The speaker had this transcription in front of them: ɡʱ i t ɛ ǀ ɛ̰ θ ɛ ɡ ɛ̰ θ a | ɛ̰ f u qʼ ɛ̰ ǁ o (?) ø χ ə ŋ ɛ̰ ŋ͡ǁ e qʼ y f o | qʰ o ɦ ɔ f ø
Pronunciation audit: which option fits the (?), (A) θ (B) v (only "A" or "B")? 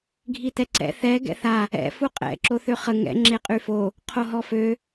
A